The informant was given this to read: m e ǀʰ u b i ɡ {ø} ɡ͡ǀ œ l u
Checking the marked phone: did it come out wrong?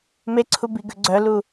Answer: no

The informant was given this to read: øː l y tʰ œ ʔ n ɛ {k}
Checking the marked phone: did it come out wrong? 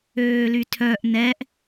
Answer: yes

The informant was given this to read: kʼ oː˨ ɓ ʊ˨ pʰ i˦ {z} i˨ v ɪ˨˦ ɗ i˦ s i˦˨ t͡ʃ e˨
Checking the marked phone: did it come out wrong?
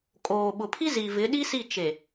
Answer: no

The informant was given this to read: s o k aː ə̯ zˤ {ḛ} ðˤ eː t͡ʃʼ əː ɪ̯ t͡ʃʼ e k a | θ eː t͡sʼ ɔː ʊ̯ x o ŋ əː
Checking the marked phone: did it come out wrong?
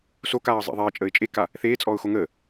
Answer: no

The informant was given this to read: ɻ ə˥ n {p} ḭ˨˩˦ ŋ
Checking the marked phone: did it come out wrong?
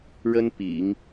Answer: no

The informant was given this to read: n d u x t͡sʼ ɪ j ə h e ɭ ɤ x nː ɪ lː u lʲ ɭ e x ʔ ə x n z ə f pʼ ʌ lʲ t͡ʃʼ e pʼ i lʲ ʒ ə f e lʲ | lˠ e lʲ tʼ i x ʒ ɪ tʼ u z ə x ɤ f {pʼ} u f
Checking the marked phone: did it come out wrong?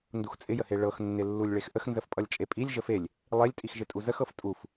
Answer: yes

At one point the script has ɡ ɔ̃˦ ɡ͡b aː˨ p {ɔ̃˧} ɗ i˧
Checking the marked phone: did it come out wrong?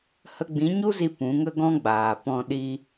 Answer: no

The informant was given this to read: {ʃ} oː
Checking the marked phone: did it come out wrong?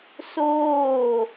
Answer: yes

